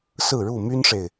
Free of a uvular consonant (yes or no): yes